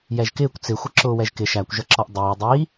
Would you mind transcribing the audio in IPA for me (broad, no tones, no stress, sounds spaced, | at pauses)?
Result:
j ɛ ʒ k ɪː kʷ t͡s ɪ xʷ ə ǁ ʊː w ɛ ʒ k ɪ ʃ æ kʷ ʒ ʌ ǁ ɔ ʔ dˤ ɪː dˤ i